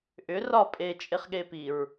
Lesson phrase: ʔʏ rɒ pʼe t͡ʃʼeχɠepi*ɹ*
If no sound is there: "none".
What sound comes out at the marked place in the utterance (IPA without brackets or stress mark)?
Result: ɹ